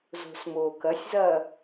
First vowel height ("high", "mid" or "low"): mid